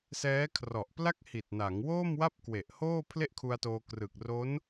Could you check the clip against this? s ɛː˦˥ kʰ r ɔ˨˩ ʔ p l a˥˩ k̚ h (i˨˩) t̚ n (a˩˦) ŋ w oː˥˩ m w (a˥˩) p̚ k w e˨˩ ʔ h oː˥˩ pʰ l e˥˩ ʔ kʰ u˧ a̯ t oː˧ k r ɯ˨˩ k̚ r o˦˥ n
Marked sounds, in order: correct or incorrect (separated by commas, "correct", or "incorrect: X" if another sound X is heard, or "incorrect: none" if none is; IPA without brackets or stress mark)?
correct, correct, correct